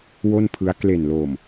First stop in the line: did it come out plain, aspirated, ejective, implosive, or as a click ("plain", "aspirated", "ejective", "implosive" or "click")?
aspirated